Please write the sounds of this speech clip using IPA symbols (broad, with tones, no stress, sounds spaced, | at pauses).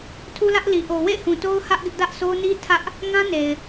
tʰ u˦ l ä˦ ʔ l i˨ ʔ o˨ w ḛ˦˨ ɪ̯ h ũ˨ t o˦ ʊ̯ h ä˦ ʔ ɡ ɪ˦ ʔ d ä˦ ʔ sʰ o˦ n i˦ tʰ ä˦ ʔ | ŋ ã˦ n e˨ ɪ̯